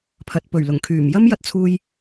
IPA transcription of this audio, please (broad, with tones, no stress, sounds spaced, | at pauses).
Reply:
pʰ ɐ˨ t̚ p ɵ˨˩ ɥ l ʊ˨˩ ŋ kʰ yː˨˩ m j ɐ˥ m j ɐ˧ t̚ t͡sʰ uː˧ j